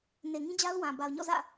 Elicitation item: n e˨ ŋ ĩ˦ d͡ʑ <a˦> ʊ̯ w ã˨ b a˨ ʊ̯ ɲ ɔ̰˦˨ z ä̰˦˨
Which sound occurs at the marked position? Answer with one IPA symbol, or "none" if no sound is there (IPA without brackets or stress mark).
a˦